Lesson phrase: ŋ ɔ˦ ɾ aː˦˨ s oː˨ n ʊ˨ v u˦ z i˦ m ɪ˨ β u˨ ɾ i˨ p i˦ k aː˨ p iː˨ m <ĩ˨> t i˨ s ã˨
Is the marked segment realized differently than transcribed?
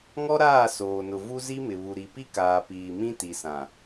yes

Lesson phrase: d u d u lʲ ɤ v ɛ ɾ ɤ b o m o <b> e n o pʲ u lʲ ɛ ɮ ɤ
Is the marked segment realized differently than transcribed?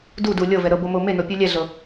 yes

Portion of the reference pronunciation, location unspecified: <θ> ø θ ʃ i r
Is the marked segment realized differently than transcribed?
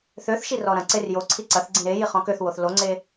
no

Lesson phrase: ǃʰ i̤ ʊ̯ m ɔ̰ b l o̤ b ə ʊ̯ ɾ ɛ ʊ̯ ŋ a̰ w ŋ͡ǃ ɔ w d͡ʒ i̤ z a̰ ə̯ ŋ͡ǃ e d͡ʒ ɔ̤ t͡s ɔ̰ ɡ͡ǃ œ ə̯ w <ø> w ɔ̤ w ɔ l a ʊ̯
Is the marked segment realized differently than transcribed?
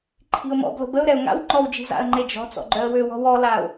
no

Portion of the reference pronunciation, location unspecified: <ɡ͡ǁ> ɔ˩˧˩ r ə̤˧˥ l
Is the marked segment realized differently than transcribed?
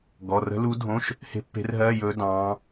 yes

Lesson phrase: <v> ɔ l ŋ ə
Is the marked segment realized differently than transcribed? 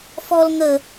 yes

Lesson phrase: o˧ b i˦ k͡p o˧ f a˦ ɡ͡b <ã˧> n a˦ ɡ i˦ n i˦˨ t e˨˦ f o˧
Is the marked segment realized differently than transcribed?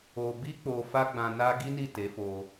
no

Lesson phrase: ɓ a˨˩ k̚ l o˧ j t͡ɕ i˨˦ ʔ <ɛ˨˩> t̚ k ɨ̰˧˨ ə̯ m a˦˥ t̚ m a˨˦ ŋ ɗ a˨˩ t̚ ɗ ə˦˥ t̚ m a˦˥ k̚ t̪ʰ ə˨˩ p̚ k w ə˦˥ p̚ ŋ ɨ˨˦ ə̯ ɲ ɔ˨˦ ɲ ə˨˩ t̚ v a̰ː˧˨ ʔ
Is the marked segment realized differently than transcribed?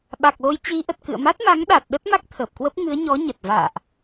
yes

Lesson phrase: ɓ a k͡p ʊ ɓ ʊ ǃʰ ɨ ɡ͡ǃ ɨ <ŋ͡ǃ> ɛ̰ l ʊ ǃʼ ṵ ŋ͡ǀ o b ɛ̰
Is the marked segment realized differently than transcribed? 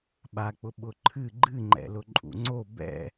no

